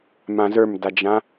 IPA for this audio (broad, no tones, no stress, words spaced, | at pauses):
mãzə˞mdad͡ʒã